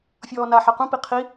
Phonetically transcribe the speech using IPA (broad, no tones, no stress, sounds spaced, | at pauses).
fʲ ɔː n a ħ a q ũ p i qʰ i